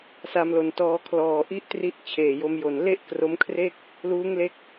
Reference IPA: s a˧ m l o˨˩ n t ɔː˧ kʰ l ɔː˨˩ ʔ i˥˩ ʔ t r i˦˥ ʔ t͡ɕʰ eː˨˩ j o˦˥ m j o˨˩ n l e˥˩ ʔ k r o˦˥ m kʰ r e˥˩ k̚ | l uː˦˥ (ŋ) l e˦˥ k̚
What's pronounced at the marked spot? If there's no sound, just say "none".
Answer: ŋ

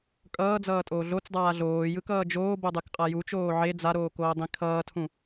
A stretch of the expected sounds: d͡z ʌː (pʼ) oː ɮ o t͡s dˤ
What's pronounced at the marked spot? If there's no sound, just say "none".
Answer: tʼ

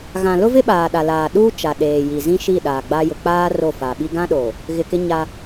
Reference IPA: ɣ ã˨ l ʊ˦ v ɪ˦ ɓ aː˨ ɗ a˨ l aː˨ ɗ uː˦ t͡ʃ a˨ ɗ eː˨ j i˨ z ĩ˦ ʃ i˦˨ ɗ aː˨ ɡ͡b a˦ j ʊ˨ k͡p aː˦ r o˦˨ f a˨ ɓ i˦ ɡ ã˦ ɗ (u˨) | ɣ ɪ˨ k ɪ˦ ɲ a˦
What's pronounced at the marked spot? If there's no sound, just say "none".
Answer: o˨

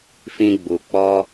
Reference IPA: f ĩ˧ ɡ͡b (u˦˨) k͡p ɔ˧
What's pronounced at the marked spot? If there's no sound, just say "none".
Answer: u˨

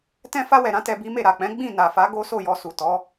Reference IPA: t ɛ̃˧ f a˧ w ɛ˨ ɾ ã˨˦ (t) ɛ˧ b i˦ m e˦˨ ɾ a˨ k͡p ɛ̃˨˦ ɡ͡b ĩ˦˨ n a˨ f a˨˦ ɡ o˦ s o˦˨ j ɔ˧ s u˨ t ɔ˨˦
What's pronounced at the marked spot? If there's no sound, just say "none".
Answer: t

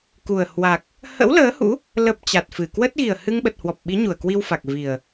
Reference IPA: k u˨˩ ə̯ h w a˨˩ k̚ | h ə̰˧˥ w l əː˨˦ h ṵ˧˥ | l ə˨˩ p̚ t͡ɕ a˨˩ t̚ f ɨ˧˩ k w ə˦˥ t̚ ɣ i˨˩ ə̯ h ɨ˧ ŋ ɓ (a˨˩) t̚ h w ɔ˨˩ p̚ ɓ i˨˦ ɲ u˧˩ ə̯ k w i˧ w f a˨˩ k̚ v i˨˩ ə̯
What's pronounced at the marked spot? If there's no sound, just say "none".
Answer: ə˨˩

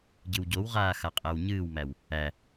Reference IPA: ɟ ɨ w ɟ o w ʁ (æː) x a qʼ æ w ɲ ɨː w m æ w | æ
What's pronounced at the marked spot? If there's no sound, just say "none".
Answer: aː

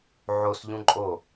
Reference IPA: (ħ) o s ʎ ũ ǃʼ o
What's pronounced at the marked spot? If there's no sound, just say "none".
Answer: ʕ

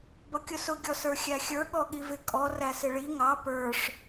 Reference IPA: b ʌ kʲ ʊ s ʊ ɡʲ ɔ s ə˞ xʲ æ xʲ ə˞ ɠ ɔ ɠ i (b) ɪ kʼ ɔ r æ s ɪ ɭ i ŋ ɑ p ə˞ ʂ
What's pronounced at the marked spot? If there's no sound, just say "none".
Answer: v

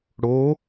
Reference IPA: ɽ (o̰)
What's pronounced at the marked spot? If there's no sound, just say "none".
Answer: o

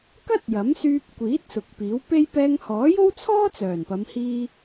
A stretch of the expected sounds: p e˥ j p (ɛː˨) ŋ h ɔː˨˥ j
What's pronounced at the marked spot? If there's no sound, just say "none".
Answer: ɛː˧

